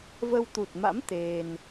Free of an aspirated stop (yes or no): yes